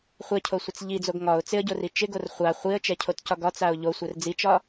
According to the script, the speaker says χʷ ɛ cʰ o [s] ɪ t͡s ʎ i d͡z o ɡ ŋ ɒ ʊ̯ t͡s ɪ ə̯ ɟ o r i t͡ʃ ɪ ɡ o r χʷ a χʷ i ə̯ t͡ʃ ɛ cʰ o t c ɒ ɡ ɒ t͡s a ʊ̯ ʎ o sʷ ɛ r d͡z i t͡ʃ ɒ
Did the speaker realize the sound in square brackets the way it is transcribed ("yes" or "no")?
no